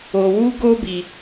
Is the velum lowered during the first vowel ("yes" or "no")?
no